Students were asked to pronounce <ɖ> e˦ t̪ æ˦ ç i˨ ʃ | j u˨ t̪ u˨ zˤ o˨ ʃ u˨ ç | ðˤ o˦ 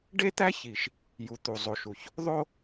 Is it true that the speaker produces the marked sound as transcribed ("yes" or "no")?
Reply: yes